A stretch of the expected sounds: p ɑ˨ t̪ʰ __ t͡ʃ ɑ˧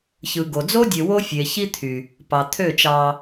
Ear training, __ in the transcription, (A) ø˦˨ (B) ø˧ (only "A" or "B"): A